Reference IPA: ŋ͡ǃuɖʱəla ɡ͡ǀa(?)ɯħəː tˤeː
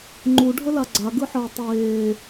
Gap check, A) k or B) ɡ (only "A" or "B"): B